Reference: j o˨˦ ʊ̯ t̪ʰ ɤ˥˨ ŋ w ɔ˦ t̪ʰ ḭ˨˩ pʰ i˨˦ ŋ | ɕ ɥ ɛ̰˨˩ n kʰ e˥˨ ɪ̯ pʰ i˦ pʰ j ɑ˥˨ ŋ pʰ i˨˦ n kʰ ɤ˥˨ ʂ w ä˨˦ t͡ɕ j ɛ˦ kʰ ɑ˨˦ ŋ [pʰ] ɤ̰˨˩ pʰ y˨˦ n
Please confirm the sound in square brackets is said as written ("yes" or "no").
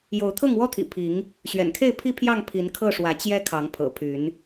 yes